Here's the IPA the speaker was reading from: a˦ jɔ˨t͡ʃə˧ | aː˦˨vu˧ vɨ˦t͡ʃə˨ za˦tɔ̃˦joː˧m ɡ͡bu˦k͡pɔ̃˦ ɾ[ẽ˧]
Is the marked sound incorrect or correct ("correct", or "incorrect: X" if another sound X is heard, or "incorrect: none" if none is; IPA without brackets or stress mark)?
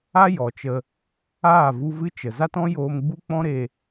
incorrect: e˧